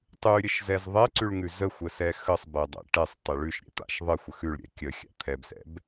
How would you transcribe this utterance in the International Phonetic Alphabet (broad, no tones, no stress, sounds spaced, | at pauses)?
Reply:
tˤ ʉ ɾʲ ə ʃ z ɛ z ðˤ ɛ ǀ ʉ ɭ ŋ ʉ z ə xʷ ə s ɛ x ə sˤ b ɛ dˤ ɛ̰ ʈ ɛ sˤ tˤ ə ɭ ʉ ʃ ɾʲ ɛ̰ t̪ a̰ ʃ ðˤ ə xʷ ə x ʉ ɭ ɾʲ ɛ̰ kʲ ə xʲ a̰ t̪ʰ ɛ b s ɛ̰ b